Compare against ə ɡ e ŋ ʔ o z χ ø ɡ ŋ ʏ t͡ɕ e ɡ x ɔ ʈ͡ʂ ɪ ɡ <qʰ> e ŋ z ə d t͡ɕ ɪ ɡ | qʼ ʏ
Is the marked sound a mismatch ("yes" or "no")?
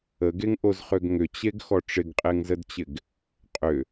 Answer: yes